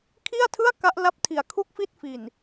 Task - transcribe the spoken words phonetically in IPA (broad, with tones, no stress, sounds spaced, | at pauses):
kʰ i˥˩ a̯ tʰ ɯ˥˩ a̯ k a˦˥ ʔ l a˦˥ p̚ tʰ i˨˩ a̯ kʰ u˥˩ k̚ f i˥˩ t̚ f i˨˩ n